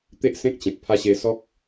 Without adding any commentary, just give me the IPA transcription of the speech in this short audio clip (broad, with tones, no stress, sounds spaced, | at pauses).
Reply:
t̪ e˦ ʔ s ẽ˦ k̚ t͡ɕ ẽ˨ t̚ pʰ a˦ ɕ e˧ s ɔ˦ k̚